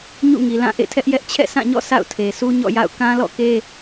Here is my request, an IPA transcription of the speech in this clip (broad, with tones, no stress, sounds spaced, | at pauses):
ɲ ṵ˦˨ ŋ i˨ l ã˦˨ ʔ ḛ˦˨ tʰ ɛ˦ ʔ j ɛ˦ ʔ t͡ɕʰ ɛ̰˦˨ sʰ ã˦˨ ɲ ɔ̰˦˨ sʰ a̰˦˨ ʊ̯ tʰ e˨ sʰ u˦ ɲ ɔ̰˦˨ j a̰˦˨ ʊ̯ k ã˦ l ɔ̰˦˨ k e˦